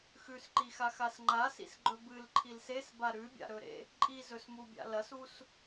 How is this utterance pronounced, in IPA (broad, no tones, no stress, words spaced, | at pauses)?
xʉsǃixaxas ŋ͡ǃasḭsɡ͡ǃɵ bɨlǃʰil sesba ɾʉbʲa̰ɾɵɾḛ | ǃʼizɵsmubʲa̰ lɐsus